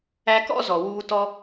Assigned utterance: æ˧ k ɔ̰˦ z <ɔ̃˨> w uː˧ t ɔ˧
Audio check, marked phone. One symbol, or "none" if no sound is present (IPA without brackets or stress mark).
ɔ˨